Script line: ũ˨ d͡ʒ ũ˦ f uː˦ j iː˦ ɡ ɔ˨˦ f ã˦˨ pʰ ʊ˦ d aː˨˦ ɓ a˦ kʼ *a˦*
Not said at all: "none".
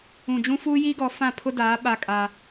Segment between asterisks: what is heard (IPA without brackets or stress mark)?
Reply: a˦